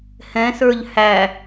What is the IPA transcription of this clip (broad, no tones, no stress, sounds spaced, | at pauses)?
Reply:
h ɛ̃ s ə˞ ʎ h æ